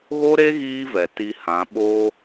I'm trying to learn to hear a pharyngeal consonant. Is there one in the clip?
no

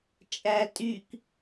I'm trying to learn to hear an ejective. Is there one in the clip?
yes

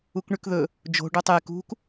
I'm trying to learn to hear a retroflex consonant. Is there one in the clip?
yes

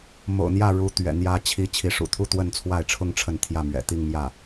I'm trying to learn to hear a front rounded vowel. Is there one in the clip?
no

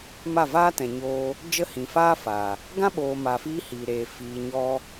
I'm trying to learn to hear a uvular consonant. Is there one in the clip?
no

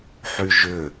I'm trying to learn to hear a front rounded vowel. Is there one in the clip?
yes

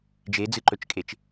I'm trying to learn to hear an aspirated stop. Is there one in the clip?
no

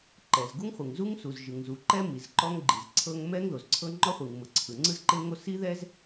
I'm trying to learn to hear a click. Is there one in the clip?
yes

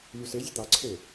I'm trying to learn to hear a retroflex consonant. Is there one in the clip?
no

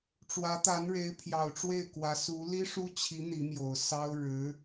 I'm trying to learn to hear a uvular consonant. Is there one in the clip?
no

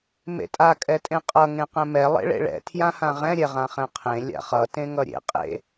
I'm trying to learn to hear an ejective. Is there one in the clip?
yes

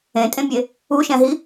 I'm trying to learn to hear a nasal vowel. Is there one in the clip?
yes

